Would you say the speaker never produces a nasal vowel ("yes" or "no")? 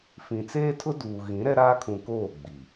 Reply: no